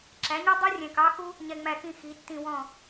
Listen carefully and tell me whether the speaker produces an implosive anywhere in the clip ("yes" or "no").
no